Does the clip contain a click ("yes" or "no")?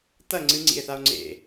yes